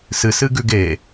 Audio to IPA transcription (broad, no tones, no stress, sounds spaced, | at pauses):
s ɨ s ɨ ɡ ʉ ɡ e